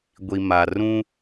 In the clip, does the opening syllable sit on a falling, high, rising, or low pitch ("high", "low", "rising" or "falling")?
low